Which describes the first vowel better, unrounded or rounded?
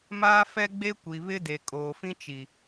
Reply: unrounded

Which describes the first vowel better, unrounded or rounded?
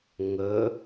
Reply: rounded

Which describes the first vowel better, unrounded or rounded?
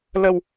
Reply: unrounded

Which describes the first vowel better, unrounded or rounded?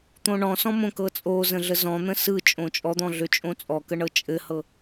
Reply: rounded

